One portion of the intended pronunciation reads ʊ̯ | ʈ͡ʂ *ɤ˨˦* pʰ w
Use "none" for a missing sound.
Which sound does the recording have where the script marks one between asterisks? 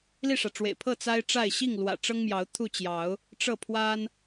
ɤ˥˨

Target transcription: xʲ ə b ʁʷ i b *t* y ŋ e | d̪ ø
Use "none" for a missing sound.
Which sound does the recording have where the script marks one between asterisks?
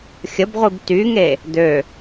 t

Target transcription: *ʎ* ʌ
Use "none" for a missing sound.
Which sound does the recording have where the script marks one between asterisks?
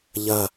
ʎ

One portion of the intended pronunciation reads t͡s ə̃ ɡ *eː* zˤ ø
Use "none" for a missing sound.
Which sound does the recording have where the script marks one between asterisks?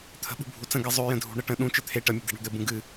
e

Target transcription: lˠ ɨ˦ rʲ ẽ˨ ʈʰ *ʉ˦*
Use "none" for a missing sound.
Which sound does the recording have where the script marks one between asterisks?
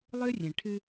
ɨ˦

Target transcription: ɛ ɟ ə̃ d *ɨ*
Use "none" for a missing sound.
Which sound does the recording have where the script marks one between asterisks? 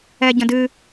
ɨ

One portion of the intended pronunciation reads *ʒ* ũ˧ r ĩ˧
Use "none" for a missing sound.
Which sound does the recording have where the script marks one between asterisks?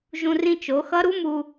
ʒ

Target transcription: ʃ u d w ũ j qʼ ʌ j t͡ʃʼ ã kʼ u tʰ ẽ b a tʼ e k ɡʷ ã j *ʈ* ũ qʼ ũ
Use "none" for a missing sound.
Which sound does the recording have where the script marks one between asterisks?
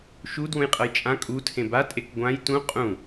t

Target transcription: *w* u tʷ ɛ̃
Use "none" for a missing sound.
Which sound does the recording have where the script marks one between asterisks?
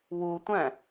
w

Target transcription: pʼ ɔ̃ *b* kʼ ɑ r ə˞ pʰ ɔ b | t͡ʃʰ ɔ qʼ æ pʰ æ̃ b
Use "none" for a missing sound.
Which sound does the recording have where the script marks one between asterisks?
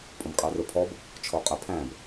b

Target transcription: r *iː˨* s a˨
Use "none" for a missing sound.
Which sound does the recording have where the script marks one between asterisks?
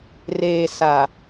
eː˨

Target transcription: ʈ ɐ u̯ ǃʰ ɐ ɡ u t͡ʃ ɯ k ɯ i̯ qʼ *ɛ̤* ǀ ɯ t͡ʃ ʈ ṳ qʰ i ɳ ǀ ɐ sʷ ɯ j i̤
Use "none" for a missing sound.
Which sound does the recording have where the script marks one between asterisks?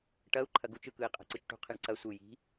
ɛ̤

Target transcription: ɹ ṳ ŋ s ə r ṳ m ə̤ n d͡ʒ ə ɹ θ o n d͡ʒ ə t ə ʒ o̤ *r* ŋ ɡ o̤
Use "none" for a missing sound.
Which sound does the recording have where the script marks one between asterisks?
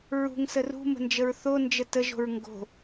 ɹ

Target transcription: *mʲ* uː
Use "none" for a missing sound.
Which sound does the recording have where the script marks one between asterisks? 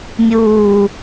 mʲ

